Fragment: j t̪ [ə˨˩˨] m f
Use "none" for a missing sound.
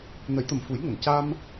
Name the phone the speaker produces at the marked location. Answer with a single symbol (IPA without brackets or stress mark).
ə˨˩